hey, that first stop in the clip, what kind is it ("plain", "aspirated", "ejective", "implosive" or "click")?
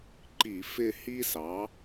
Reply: click